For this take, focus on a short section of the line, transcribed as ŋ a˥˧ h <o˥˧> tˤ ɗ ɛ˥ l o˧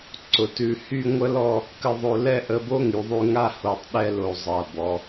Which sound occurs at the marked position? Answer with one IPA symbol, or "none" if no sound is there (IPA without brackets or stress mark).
o˧˩